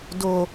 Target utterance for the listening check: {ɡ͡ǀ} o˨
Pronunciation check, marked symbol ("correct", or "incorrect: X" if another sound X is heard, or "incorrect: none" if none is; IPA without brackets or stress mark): incorrect: d